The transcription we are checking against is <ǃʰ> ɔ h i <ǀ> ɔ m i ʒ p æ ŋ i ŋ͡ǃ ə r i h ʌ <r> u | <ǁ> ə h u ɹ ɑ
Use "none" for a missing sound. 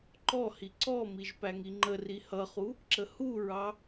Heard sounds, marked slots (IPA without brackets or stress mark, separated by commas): ǃ, ǀ, χ, ǁ